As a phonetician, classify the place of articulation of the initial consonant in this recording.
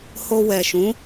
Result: glottal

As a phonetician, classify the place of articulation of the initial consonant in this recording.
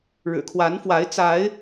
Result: retroflex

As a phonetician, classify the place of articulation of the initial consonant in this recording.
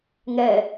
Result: velar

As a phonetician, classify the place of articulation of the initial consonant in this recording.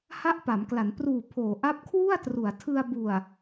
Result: glottal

